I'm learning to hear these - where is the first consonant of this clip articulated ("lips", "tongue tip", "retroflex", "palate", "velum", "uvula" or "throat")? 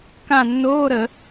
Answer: velum